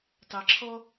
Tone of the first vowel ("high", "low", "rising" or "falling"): low